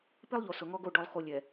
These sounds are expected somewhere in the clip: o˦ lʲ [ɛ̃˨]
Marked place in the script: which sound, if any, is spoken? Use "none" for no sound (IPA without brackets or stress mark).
ɛ˨